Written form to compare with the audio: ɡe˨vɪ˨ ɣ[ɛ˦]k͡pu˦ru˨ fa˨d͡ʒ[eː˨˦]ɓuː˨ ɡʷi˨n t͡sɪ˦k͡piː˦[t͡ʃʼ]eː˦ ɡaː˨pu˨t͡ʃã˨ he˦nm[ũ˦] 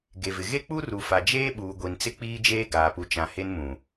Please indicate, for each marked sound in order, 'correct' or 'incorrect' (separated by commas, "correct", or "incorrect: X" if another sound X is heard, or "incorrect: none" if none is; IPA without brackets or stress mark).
incorrect: e˦, incorrect: eː˦, incorrect: d͡ʒ, incorrect: ũ˨